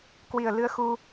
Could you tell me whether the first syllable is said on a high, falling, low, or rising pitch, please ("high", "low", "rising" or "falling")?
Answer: low